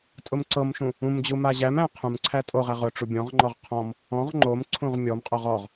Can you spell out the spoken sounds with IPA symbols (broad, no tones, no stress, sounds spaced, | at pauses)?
tʼ ʊ m ǀ ɤ m ʃ ũ | ũ m d͡ʑ u m a ʑ æ m æ̃ qʰ ũ m ǀʰ æ tʼ o ʁ æ ʁ ʊ ʈ͡ʂ u bʲ ɔ̃ ʁ ŋ͡ǃ ɔ ʁ qʰ ɔ̃ m | ɔ̃ ʁ ŋ͡ǃ o m ǀʰ ũ ʁ mʲ ɔ m qʼ o ʁ ɔ ʁ